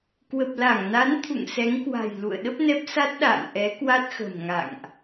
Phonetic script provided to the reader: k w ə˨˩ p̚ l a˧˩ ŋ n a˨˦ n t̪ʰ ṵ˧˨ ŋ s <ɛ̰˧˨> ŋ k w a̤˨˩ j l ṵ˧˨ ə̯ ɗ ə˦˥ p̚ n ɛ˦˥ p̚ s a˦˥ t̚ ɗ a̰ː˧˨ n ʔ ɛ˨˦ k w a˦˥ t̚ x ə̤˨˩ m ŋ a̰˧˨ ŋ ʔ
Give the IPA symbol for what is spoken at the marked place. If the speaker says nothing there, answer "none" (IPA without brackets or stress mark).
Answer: ɛ˨˦